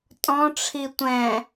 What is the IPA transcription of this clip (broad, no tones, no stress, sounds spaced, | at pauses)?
tʼ ɔ̃ ʈ͡ʂʰ i tʷ ɛ̃